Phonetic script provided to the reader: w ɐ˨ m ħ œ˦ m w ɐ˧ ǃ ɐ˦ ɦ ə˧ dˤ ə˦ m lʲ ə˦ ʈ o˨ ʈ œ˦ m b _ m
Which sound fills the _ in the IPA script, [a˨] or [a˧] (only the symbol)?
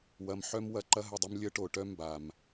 a˨